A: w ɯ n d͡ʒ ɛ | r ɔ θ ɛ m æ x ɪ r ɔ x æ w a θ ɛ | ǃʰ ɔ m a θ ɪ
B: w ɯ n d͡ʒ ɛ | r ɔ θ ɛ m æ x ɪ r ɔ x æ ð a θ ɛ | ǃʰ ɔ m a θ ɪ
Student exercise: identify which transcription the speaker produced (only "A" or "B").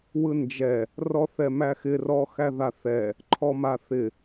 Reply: B